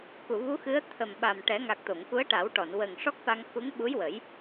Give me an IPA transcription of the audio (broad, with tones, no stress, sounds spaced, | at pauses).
k u˨˩˨ v u˧˥ x ɨ˧˥ ə̯ t̪ʰ ə˨˩ m ɓ a˨˩ m ʈ ɛ˨˩˦ ŋ a˨˩ k̚ t̪ o˨˩˨ ŋ k u˧˥ ə̯ ʈ a˨˩˦ w ʈ ɔ˨˩˨ n w ə˨˩ ŋ ʂ ɔ˦˥ k̚ f a˧ ŋ x u˧˥ ŋ ɓ u˧˥ j w ə˨˩˦ j